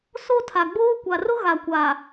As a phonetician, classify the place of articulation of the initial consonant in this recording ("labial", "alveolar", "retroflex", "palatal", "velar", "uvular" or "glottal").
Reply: alveolar